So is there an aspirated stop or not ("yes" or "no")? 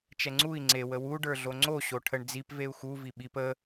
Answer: yes